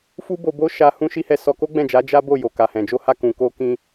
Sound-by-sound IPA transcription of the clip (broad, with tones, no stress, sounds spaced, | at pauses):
f u˦ b o˧ b o˦ ʃ a˧ h ũ˦ ʃ i˦ h ɛ˦˨ s ɔ˧ k o˦ ɡ͡b ɛ̃˦˨ d͡ʒ a˨˦ d͡ʒ a˦ b o˦˨ j o˨ k a˨ h ɛ̃˨ d͡ʒ o˧ h a˧ k ũ˨ k o˧ k ĩ˧